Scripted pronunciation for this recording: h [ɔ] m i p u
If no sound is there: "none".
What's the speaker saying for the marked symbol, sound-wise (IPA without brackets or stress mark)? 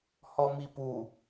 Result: ɔ